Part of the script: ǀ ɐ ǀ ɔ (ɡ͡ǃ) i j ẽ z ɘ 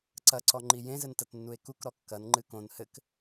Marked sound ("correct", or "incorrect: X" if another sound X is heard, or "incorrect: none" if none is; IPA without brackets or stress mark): incorrect: ŋ͡ǃ